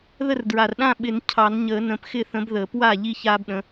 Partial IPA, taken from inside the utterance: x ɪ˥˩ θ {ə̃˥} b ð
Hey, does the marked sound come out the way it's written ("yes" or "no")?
no